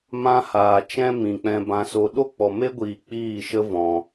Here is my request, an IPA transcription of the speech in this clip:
m ã˦ h aː˨ t͡ʃ ɛ̃˦ m ĩ˨ k͡p ɛ̃˧ b ã˧ s o˧ ɗ o˦ k͡p ɔ˨ m e˦ ɡʷ iː˨ k͡p iː˦˨ ʃ ə˦ v ɔ̃˨

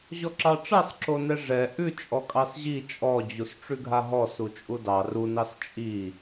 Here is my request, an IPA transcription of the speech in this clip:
ʑ ɔ ǁ ɑ ʈ͡ʂ ɑ s ǁ o n ɛ ʐ ɛ ʔ ʉ t͡ʃʼ ɔ kʼ ɑ s ʑ i t͡ʃʼ ɔ d͡ʑ u s ʈ͡ʂ ʉ ɡʱ a ɦ ɔ s u t͡ʃʼ u d ɑ r u n ɑ s t͡ʃʼ i

